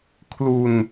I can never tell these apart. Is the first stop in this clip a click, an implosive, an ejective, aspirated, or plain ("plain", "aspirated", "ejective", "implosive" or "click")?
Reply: aspirated